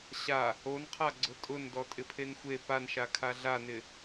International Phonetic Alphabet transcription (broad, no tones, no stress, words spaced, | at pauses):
ɕa | onqʰaɡ͡ǀʊ tʼʊn dɔtʼɪpʰenxʷe panʃakʰa ɮanɪ